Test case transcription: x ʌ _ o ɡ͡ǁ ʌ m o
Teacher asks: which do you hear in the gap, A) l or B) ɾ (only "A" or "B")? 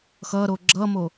B